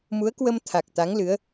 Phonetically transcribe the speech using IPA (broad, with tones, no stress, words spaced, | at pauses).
mu˨˦ə̯kwə˧m t̪ʰa˨˩k̚t̪a˨˦ŋlɨ˨˦ə̯